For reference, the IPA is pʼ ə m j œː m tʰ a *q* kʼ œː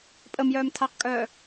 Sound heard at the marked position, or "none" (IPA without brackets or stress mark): q